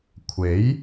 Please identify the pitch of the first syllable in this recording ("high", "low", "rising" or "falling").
rising